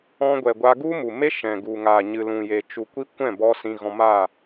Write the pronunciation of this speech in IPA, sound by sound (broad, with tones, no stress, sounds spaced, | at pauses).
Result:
ɔ̃˧ ɡʷ ɛ˨ ɡʷ a˧ ɡ u˦ m u˨ m e˦ ʃ ɛ̃˨ ɡ u˨ ŋ aː˨ ɲ ɨ˨ l ũ˨ j e˨ t͡ʃ u˨ kʷ i˧ kʷ ɛ̃˦˨ b ɔ˧ s ĩ˧ ɣ ɔ̃˧ m a˦˨